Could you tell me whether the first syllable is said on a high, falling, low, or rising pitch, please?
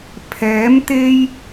rising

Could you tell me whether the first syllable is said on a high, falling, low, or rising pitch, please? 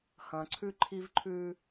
low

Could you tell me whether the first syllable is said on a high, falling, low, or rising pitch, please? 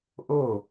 falling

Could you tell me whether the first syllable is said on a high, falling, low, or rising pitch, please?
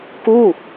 falling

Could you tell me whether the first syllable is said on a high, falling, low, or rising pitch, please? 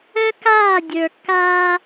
high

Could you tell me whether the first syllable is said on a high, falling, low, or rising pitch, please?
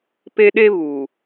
high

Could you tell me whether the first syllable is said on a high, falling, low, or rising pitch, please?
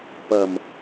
low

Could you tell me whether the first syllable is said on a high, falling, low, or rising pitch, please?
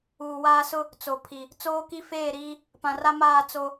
low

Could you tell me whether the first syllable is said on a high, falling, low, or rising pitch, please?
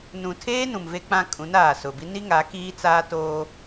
low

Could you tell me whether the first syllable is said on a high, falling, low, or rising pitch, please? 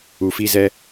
low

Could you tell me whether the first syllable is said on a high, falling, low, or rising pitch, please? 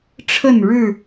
falling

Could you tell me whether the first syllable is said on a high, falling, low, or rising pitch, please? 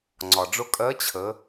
low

